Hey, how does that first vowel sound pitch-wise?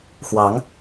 rising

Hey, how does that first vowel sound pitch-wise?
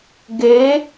rising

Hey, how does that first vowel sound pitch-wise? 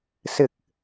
low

